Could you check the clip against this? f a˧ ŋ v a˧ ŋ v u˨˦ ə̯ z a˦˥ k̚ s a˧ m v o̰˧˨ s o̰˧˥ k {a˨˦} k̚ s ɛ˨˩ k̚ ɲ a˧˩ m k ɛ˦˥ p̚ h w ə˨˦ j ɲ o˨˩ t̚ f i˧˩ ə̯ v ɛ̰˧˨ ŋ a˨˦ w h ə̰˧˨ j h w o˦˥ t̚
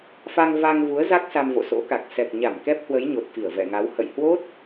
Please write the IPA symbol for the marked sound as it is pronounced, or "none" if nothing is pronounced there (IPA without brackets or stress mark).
a˨˩